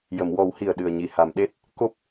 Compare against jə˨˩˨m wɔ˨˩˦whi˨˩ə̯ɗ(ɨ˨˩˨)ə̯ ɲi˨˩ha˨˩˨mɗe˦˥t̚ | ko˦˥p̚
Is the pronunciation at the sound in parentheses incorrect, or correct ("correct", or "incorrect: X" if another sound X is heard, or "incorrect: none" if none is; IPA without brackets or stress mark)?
incorrect: ɨ˨˩